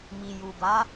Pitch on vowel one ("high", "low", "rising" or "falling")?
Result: low